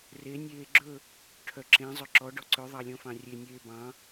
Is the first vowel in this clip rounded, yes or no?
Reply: no